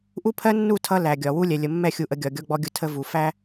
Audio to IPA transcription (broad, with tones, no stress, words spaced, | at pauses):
ʔu˦pʰɜ˦nːu˦˨ tʰʌ˦ læ˨ɡʲɒ˨ wu˦lʲɛ˨lʲə˨ mːɛ˦˨xʲu˨ʔə˨ ɡʲɒ˨ɡʲɔ˦ɡ͡bɔ˦ɡʲʊ˦ tʰə˦vu˨ fæ˦